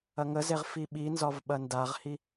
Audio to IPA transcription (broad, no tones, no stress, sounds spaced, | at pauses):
ɐ ŋ ə z e ʁ f i ɓ i n z ɒ v ɓ ɐ n d a ʁ h i